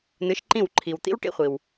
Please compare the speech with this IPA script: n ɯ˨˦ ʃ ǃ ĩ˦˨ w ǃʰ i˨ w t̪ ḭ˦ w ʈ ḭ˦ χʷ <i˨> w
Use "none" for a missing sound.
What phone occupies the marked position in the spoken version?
i˨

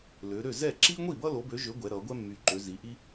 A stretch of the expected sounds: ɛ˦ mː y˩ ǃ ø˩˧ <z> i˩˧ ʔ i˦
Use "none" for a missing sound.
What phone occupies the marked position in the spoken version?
z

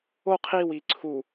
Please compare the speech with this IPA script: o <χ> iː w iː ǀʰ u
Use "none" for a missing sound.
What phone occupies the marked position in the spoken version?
qʰ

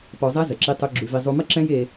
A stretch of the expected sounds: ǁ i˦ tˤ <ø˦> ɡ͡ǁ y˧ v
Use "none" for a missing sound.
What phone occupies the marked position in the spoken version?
ø˦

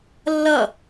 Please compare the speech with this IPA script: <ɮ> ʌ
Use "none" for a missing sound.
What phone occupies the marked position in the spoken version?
lː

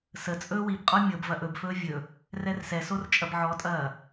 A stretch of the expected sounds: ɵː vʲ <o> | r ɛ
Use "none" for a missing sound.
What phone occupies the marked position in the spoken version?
ɵ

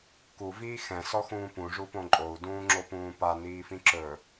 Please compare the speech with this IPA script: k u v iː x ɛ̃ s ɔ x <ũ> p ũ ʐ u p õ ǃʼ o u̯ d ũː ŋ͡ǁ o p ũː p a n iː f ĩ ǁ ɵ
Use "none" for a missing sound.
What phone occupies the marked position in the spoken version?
ũː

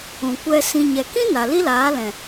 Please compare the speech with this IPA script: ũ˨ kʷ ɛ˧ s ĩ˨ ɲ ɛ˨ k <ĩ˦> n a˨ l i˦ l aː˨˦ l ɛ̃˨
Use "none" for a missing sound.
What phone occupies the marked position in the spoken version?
ĩ˦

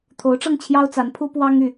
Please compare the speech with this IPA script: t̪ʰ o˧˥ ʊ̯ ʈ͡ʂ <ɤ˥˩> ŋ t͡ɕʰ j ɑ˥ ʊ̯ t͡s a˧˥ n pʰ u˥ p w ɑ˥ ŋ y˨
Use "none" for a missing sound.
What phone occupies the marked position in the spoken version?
ɤ˥˩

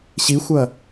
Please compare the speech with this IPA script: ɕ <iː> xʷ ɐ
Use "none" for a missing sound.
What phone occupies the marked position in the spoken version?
i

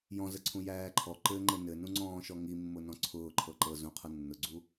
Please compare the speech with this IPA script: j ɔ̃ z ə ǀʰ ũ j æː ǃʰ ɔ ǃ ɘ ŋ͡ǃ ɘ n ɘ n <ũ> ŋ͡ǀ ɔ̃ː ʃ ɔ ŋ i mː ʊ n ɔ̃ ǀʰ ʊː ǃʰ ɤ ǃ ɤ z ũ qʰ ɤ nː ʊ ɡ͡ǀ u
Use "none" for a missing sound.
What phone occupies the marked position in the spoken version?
ũ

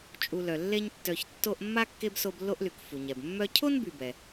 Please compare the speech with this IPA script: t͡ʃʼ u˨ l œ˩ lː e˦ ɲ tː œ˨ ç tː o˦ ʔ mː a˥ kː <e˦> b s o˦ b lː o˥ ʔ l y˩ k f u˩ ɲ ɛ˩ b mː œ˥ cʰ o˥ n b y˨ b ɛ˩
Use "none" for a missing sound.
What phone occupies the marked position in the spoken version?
e˥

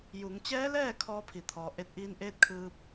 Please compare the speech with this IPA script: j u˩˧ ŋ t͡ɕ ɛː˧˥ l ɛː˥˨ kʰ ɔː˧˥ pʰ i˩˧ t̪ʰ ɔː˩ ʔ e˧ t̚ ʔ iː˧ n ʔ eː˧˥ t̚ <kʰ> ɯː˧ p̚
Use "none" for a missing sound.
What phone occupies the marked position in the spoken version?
kʰ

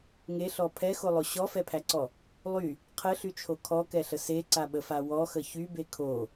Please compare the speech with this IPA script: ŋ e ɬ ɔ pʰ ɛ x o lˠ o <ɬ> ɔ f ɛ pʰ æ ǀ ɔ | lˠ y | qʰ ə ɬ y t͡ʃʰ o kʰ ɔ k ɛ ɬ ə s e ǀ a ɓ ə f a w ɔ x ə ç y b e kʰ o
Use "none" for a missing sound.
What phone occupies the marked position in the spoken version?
ɕ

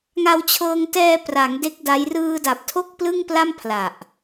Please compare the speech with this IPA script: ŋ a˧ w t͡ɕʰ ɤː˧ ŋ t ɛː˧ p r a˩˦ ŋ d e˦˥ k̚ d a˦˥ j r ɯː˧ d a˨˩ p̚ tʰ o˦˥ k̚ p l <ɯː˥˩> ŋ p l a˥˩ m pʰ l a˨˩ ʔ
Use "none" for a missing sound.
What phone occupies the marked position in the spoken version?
ɯ˥˩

